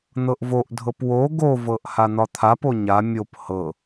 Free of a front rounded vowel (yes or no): yes